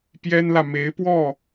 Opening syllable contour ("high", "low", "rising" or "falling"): high